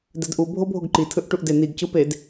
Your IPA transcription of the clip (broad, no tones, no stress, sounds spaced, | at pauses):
d ɛ d ʔ u bʱ o bʱ o ɡ ǃ i tʰ ɯ ʔ ʈ u ʔ d e n i ɡ c ɯ p e d